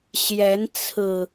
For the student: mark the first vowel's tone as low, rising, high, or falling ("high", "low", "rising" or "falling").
rising